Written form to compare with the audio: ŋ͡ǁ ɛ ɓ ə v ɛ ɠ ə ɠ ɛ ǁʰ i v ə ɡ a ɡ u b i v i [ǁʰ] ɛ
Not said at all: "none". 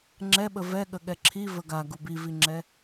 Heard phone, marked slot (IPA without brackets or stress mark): ŋ͡ǁ